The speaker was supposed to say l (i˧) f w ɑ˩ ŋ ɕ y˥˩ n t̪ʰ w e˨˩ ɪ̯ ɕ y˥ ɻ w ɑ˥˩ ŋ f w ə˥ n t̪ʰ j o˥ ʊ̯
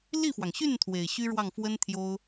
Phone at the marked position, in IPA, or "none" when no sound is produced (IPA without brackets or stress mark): i˥˩